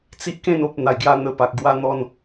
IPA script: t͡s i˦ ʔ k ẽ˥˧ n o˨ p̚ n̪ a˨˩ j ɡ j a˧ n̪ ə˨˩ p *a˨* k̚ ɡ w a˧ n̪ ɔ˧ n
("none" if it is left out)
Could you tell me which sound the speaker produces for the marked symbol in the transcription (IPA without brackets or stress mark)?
a˨